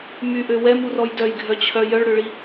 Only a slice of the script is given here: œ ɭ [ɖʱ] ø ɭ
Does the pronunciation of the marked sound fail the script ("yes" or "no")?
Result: yes